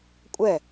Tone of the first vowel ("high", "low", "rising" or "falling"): falling